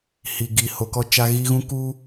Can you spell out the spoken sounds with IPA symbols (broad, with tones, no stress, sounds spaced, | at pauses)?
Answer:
h i˨ ɡ iː˨ h o˨˦ k ɔ˦ t͡ʃ a˦ ɣ i˦ ɣ ũ˦ k uː˦